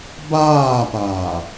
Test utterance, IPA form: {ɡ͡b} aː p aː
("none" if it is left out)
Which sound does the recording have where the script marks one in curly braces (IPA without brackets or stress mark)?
b